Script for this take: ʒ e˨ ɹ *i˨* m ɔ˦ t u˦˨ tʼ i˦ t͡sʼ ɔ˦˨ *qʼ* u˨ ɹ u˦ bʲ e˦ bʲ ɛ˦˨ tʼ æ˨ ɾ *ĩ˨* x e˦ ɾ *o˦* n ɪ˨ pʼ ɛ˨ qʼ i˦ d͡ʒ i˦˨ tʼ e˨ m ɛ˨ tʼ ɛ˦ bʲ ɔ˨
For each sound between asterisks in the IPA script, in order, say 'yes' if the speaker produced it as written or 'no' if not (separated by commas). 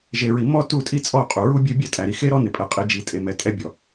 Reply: yes, yes, no, no